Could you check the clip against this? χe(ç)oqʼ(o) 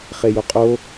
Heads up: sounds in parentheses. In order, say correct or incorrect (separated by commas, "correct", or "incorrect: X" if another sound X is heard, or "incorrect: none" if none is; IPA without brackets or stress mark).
incorrect: j, correct